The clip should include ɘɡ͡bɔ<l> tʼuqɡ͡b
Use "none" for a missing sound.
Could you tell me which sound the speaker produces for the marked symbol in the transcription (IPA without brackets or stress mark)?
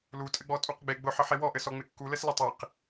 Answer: none